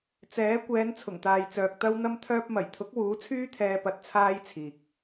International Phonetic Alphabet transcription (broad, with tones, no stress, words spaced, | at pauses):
t͡sɛː˨˥ kʷɛː˨˧nt͡sʰʊ˨˩ŋt̪aː˨jt͡sœː˨k̚ t̪ɐ˥wn̪ɐ˥mt̪ʰœː˥p̚ mɐ˨˩jt̪ʰʊ˨˥k̚ wuː˨˥t͡sʰyː˥t̪ʰɛː˧ pɐ˧t̚ t͡sʰaː˥jt͡sʰiː˨k̚